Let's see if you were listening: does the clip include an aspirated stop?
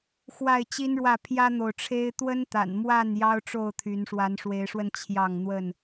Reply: yes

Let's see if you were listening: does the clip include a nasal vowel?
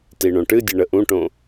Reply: yes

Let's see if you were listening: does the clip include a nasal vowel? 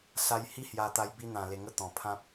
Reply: yes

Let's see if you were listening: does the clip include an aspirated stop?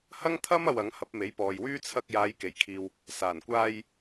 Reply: yes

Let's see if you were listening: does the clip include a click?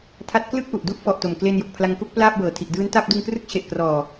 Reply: no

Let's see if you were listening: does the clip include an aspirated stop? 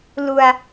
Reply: no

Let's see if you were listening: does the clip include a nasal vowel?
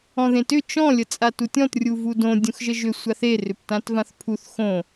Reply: yes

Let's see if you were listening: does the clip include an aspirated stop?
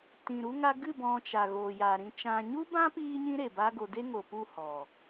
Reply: no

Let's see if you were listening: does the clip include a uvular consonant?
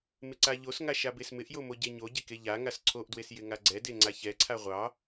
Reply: yes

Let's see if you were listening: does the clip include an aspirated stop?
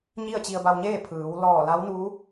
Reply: yes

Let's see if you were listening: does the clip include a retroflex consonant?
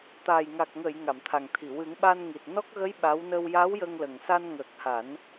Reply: no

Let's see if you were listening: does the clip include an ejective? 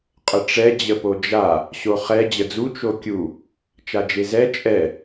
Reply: yes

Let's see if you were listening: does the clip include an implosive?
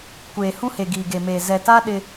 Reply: yes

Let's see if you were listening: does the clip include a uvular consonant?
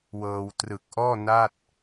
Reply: no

